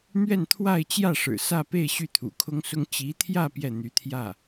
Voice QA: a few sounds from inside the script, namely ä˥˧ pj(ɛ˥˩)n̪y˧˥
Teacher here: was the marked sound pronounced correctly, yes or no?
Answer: yes